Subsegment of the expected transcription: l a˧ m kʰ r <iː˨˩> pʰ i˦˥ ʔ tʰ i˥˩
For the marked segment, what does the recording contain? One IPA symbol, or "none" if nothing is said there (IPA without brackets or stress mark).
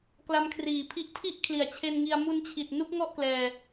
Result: iː˨˩